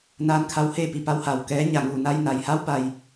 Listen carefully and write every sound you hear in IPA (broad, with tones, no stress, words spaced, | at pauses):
naː˧nkʰa˧wheː˥˨ pi˧˩pa˧˥w ha˧˩wkɛː˧˥ ɲa˩ŋuː˧˩na˧j na˩jha˧˥wba˩j